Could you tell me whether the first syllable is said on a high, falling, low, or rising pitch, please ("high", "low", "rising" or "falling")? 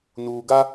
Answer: low